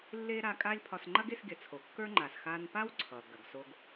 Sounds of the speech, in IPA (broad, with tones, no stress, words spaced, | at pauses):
lːe˥ ɾa˧kʼa˥lʲpʰɒ˧s ŋ͡ǃɐ˥ɡe˧sɡʲɐ˩t͡sʰo˩ kːə˞˥ŋ͡ǃa˩s xa˧npa˥wǀʰʌ˩ ɡɐ˩ɡso˧ɡ